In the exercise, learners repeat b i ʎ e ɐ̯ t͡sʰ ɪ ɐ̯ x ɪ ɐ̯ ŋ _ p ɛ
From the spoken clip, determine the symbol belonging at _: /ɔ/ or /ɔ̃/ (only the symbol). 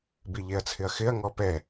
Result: ɔ